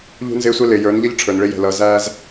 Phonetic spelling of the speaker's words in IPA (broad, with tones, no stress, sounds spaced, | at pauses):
ʎ ṳ˦ n z ɪː˦ sʷ ɛ˦ l ɪː˨ j ə˞˨˦ n ʎ ʌ˦ ʎ ʈ͡ʂʰ ə˞˨ n ɭ ɪ˦ j ɛ̤˨ l ʌː˨ z æː˦ z